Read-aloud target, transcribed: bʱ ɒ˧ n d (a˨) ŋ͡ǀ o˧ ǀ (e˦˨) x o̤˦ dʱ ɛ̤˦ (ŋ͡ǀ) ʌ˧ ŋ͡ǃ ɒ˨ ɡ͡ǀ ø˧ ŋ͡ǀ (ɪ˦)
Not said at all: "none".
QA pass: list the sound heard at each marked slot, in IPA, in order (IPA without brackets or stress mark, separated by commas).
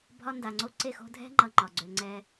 a˨, e˦˨, ŋ͡ǃ, ɛ˦